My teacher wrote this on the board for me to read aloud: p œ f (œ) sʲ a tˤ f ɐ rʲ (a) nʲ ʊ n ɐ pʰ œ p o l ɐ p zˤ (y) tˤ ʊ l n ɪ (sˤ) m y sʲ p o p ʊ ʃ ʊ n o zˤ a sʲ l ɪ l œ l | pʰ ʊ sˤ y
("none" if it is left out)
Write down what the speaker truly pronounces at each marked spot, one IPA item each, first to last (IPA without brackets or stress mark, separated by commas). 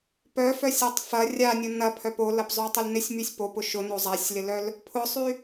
œ, a, y, sʲ